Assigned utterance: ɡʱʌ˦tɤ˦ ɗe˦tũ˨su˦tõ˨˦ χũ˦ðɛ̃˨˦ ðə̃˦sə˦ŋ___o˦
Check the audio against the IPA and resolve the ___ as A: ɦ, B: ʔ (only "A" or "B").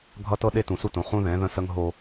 A